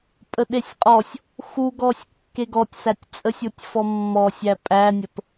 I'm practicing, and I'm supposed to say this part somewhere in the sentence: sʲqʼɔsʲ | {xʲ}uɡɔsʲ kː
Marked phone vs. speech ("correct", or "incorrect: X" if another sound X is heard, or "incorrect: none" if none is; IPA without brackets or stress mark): incorrect: x